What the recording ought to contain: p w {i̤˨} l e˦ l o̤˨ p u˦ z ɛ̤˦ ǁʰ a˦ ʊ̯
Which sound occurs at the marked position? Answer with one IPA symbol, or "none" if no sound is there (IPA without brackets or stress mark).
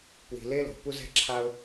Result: i̤˨